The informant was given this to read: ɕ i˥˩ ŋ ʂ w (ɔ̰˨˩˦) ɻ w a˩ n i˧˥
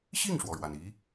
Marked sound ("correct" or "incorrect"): incorrect